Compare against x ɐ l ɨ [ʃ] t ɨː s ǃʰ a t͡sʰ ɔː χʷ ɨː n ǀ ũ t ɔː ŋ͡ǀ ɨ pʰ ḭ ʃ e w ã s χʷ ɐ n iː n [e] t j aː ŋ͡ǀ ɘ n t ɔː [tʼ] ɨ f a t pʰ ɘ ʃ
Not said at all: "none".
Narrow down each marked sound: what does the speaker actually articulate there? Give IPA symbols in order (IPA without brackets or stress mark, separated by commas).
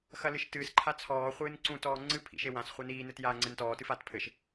ʃ, ɘ, t